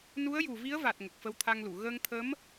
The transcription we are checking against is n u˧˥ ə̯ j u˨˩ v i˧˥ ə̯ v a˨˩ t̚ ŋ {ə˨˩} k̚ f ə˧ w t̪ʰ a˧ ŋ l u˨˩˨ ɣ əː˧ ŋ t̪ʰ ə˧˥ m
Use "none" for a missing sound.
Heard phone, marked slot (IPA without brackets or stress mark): ə˨˩